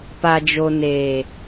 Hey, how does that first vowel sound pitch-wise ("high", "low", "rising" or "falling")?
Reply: low